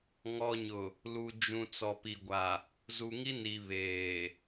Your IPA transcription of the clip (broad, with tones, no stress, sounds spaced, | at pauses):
ŋ ɔ˨ ɲ ʊ˨ | l u˨ d͡ʒ ũ˨ t͡s ɔ˨ p i˨ ɡʷ a˨ | z u˨ ŋ i˦ n i˨ β eː˨